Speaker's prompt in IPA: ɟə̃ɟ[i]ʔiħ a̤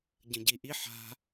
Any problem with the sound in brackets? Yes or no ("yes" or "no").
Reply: no